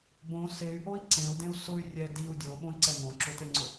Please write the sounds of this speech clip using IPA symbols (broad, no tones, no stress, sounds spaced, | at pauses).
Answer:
b õ s e y̯ ʔ o i̯ ǀ ẽ u̯ d ẽ u̯ s ʊ y̯ rʲ ɛ d i u̯ dʲ o ɓ õ i̯ ǀ ɛ ŋ õ ǁ ʊ t e ŋ͡ǀ ʊ